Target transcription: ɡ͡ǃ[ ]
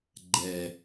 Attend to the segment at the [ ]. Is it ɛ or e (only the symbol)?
ɛ